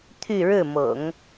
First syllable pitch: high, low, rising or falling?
falling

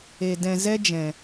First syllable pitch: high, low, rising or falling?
low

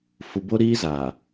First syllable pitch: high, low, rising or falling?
low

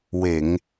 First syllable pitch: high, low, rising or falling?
low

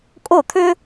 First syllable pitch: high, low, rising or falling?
falling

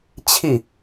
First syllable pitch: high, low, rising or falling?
falling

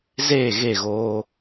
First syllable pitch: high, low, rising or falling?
falling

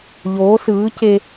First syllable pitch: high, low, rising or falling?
rising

